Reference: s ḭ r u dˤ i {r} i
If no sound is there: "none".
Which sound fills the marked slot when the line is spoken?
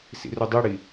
ɽ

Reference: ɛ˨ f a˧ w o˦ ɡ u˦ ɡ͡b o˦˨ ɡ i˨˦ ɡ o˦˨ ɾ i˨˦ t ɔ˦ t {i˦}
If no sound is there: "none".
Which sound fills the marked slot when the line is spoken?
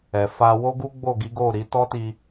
i˧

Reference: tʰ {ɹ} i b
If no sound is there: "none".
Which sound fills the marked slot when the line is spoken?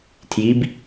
j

